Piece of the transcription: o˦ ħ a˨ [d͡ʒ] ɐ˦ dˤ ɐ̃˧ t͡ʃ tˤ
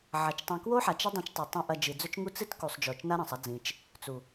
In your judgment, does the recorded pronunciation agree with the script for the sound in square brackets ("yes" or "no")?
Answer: no